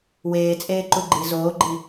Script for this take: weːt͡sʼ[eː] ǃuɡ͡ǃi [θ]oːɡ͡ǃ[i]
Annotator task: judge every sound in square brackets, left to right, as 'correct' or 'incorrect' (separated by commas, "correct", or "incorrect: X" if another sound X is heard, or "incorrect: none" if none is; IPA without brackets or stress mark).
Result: correct, incorrect: z, correct